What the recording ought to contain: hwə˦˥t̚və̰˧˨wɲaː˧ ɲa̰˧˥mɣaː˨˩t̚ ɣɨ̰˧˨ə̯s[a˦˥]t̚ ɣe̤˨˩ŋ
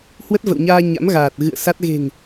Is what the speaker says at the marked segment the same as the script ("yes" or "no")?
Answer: yes